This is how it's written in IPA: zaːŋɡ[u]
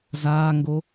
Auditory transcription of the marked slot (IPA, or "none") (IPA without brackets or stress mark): o